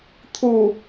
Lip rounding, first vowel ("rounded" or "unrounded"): rounded